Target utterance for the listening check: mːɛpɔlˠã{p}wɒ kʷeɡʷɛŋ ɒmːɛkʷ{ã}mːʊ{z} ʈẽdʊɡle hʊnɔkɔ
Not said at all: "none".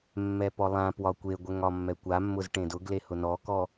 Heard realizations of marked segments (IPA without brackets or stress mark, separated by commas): p, a, z